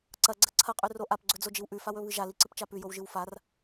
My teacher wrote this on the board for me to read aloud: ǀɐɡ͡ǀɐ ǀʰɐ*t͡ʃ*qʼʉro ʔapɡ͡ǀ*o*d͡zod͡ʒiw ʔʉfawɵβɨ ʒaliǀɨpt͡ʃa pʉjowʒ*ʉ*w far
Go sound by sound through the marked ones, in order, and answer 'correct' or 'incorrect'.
incorrect, incorrect, incorrect

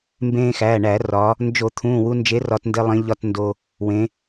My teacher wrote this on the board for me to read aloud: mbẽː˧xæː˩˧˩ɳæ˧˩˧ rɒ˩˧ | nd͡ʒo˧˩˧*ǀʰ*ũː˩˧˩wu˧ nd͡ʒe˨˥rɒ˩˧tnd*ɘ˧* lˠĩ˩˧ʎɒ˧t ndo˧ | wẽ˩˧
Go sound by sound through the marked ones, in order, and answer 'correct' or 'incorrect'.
incorrect, incorrect

